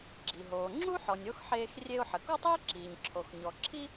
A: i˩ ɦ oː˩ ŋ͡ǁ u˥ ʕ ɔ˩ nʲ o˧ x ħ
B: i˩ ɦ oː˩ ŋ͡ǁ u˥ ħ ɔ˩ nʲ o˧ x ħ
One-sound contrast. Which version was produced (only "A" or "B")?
B